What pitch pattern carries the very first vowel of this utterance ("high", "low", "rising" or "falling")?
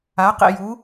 rising